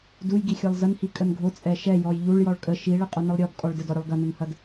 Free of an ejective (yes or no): no